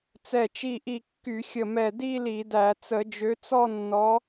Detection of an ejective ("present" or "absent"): absent